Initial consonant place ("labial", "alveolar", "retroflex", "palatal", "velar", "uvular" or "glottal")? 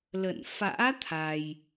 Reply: alveolar